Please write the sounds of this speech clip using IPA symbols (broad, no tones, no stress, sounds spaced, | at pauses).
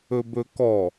ɵ b ɵ k ɔ